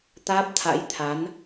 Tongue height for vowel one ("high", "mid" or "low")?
low